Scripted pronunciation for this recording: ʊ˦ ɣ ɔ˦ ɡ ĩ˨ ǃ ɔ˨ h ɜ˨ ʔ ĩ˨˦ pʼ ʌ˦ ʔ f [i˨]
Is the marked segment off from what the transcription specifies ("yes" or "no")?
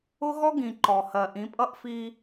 yes